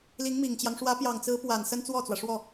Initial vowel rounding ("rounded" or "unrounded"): unrounded